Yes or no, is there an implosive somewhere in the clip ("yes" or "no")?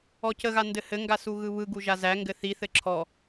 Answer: no